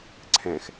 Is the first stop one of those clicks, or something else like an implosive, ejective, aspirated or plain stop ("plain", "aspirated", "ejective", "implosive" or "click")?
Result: click